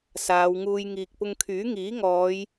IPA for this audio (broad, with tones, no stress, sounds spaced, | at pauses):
s aː˨˧ w ŋ uː˧ j ŋ iː˨ k̚ p ʊ˧ ŋ kʰ yː˨˥ ŋ iː˨˥ ŋ ɔː˨˧ j